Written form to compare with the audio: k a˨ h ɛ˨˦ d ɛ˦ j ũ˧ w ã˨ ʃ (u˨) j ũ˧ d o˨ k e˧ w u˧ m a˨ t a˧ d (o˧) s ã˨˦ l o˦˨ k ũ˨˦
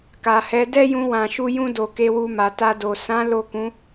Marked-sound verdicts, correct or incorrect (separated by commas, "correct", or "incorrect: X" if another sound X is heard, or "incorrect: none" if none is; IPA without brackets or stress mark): incorrect: u˧, incorrect: o˨